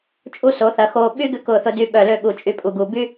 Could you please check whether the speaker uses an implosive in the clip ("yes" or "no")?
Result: yes